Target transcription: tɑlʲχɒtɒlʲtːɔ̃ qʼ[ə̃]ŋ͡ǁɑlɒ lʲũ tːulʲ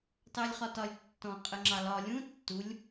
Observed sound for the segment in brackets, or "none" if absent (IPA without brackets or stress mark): ə